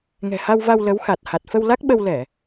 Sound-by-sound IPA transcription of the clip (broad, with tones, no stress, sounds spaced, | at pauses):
ŋ ɛ̤˨˩ h a˧ w v a˧ w l ə˨˦ w x a˨˩ t̚ h a˨˩ t̚ f ə˧ w l a˦˥ k̚ ɓ ə˧ w l ɛ˧˩˨